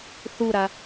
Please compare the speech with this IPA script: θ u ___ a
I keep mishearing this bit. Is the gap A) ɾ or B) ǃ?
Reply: A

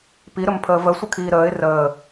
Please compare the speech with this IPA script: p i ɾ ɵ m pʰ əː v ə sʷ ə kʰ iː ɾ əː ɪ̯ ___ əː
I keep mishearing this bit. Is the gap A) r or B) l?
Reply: A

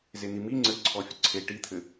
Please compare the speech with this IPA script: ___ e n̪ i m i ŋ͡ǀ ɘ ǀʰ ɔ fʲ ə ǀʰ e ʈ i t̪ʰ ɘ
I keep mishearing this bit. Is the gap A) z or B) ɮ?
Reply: A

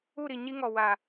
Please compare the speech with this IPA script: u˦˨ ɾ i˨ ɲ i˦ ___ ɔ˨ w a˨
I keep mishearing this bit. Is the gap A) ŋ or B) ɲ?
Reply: A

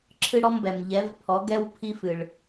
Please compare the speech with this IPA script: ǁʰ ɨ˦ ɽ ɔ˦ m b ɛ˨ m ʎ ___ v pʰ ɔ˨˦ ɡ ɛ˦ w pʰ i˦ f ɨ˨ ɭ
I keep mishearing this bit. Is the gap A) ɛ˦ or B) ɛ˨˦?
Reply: B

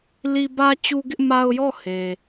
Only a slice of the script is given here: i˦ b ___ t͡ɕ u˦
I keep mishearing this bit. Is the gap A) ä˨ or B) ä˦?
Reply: B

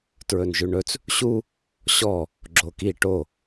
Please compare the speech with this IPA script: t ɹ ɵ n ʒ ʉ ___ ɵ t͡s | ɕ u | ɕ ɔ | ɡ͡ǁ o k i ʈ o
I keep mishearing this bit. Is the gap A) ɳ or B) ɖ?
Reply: A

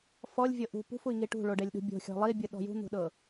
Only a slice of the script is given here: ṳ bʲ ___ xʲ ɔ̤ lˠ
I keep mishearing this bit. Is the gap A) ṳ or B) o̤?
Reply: B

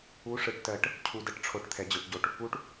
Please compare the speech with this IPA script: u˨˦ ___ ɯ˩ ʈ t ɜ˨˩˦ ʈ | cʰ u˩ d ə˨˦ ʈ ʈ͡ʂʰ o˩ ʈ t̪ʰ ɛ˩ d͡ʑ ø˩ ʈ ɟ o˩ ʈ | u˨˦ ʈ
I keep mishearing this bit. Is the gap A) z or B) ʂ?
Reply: B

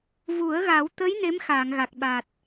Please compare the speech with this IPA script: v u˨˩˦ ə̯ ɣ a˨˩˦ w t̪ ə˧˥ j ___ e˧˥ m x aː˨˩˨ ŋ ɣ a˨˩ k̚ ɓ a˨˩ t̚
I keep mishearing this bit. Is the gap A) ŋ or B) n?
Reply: B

